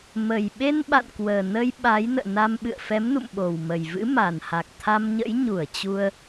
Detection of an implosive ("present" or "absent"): present